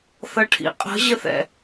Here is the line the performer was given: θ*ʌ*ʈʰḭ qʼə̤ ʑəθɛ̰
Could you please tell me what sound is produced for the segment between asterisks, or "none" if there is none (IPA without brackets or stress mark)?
ʌ